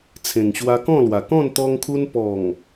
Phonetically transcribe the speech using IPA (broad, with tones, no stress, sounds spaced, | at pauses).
t͡sʰ ẽ˨˩ ŋ ɕ w a˧ k ɔ̃˥˧ l w a˨˩ k ɔ̃˥˧ n t̪ ɔ˧ ŋ kʰ u˧ n p ɔ˨˩ ŋ